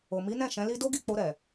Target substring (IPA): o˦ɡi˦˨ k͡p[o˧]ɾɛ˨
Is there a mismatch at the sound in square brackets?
no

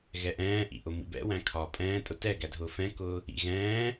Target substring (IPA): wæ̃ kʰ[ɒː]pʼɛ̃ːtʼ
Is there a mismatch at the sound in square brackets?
no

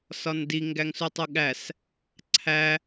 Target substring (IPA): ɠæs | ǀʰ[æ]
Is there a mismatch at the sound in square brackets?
no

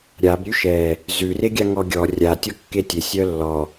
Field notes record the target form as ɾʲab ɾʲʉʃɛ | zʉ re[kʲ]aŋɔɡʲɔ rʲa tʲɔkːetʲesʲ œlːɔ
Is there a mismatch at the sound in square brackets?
yes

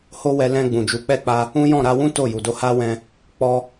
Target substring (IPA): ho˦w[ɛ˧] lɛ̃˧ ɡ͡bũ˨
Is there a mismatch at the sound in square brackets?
no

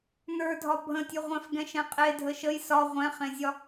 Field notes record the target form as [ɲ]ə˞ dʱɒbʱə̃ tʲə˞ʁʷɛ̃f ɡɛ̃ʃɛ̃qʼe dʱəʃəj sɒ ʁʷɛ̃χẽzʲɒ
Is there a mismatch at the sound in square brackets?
yes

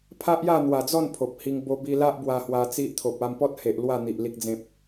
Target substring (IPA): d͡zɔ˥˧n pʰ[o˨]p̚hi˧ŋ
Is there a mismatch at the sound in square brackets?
no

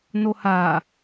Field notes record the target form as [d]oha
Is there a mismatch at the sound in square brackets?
yes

